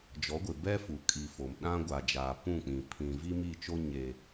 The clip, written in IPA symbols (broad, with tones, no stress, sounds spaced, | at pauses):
d͡ʒ ɔ˨˦ ɡʷ ɪ˨ b ɛ˦ f u˨ kʼ i˨ f o˨ m ɗ ã˦ ɡʷ a˨ d͡ʒ aː˨ p ũ˦˨ k͡p ĩ˨ pʰ ĩ˨ v i˦ m i˦˨ t͡ʃ o˦ ɲ e˦